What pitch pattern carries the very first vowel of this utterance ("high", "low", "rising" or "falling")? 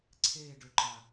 falling